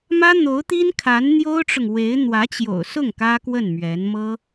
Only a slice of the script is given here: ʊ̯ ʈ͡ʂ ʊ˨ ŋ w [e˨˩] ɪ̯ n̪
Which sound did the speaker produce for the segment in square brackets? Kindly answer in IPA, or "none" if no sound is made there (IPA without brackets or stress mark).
e˧˥